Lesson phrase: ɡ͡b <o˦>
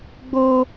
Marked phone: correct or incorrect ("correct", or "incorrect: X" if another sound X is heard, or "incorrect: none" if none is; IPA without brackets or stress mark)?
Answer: correct